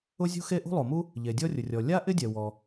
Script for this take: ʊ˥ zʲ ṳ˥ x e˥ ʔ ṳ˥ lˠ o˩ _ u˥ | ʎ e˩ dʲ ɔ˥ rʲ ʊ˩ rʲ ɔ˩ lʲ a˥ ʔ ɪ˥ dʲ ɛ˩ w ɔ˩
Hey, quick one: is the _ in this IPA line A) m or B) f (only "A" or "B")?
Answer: A